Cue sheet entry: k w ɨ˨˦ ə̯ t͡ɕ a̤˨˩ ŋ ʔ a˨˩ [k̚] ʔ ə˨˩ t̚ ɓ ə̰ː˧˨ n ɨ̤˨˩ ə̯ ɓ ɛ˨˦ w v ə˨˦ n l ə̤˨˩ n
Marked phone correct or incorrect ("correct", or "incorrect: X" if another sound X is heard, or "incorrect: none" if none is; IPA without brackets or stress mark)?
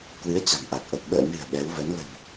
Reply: correct